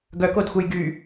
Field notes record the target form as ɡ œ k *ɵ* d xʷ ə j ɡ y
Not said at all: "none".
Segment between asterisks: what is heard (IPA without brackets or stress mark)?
o